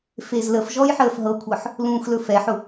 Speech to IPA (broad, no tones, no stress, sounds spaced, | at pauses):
f e z l ə f ʒ ɔ j ħ əː f ɦ ɤ kʷʰ ɤ ħ | l ũː x l ɵ f ɛ ħ ʊ